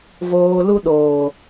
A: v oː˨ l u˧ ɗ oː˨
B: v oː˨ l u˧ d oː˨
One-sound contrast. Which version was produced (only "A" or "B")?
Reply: A